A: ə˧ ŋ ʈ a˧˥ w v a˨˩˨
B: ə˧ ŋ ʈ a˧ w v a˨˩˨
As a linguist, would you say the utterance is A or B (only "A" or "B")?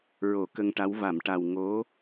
A